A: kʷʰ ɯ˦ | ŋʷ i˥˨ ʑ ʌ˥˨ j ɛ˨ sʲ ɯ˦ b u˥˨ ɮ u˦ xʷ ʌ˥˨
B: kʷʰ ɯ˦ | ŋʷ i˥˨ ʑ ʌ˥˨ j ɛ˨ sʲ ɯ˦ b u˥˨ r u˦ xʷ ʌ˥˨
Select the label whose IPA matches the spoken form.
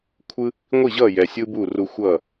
B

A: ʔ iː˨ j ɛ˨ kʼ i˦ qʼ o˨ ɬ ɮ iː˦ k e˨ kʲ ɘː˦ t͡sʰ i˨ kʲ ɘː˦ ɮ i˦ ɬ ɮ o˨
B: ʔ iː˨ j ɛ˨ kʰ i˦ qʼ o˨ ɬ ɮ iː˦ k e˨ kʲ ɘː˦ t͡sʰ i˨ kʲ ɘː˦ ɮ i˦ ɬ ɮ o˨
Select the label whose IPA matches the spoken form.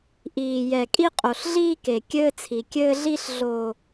A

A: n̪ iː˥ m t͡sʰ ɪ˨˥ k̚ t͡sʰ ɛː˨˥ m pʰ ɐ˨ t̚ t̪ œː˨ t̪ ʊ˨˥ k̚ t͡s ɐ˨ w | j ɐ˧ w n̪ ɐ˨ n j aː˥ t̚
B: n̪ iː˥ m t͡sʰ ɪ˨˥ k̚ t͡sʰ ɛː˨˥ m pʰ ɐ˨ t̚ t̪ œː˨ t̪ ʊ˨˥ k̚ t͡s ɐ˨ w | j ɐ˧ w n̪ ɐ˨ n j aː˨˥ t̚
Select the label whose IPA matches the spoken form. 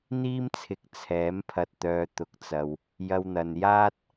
A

